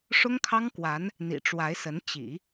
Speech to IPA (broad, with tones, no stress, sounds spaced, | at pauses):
ʂ ʊ˥ ŋ kʰ ɑ˥ ŋ k w a˧˥ n | n̪ ḭ˨˩ ʈ͡ʂ w a˧˥ ɪ̯ s ə˧˥ n t͡ɕ ḭ˨˩˦